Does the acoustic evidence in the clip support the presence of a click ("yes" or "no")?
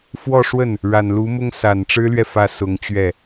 no